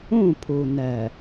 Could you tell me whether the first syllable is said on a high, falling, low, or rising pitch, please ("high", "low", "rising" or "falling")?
falling